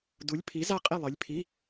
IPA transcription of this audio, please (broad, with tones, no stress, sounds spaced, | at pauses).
d u˨˥ lʲ pʰ i˨˥ z a˥˨ qʼ e˥˨ lˠ ɨ˨˥ lʲ pʰ i˧˥˧